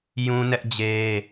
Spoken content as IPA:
j ũ˦ n ɛ˦ ʔ d͡ʑ e˦

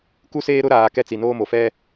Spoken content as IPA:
k u˦ s eː˦ ɾ ʊ˦ ɾ aː˨ k ɛ˦ t͡s i˨ n oː˦ m o˨ f ɛ˦

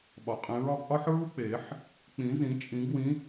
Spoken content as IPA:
ɓ ɒ˨˩˦ qʼ ẽ˨˥ ɹ ɒ˨˥ ɡ ʔ ɒ˥ ħ ɹ u˥ k͡p e˨˩˦ ħ | k͡p ĩ˨˩˦ z ĩ˨˩˦ t͡ʃʼ ĩ˨˩˦ ɡ w ĩ˨˥

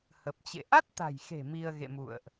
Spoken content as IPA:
h ə˨˩ p̚ t͡ɕ ḛ˧˨ ʔ a˦˥ t̚ t̪ a̤˨˩ j x e̤˨˩ m i˧ ə̯ ɣ ḛ˧˨ m ṵ˧˨ ə̯ ʔ

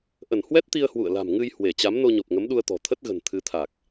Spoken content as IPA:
ʔ ə˧˩ n h w ɛ˦˥ t̚ t̪ i˧ ə̯ h w ṵ˧˨ ə̯ l a̤˨˩ m ŋ ɨ˧ j h w e˧˩ t͡ɕ a˨˦ m n o˧ ɲ o˨˩ p̚ ŋ ə˨˦ m ɗ u˧ ə̯ t̪ ɔ̤˨˩ t̪ʰ ə˦˥ t̚ ɣ ə̤˨˩ n t̪ʰ ɨ˨˦ t̪ʰ a˨˩ k̚

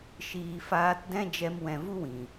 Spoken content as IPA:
ʃ iː˨ f aː˧ t d ɛ̃˦ d͡ʒ ɛ˧ m w ɛ̃˨ v u˦ w ĩ˨

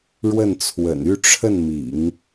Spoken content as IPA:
ɻ w ə˥˩ n t͡sʰ w ə̰˨˩ n y˥˧ ʈ͡ʂʰ ə˥˩ n m ḭ˨˩˦ ŋ

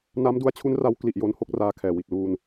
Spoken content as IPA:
n a˦˥ m d u˦˥ a̯ t͡ɕʰ u˦˥ n r a˦˥ w k l i˨˩ ʔ j o˦˥ n h o˥˩ k̚ r aː˧ kʰ ɛː˨˩ w i˨˩ t̚ l uː˧ n

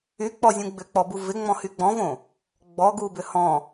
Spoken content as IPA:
y k͡p ɔ zʲ ũ ɡ͡b ʏ k͡p ɔ b u v ɪ ŋ͡m ɔ̃ h y ɡ͡b ɔ̃ v õ | ɡ͡b ɔ ɡ u b ʏ h ɔ̃

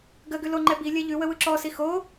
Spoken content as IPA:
ɡ ə ɡ ʉ l o ŋ͡ǃ ɛ b i lʲ ɛ ʎ ʉ w ə w ɯ ǁ ɔ s i x o

